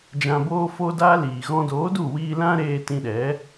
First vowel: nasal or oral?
nasal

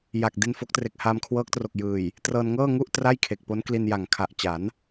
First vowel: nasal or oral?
oral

